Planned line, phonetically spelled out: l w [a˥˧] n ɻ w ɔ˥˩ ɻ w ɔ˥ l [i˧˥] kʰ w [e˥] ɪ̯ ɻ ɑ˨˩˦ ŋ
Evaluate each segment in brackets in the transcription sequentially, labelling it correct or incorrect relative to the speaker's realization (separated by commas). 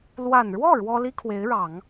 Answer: incorrect, incorrect, incorrect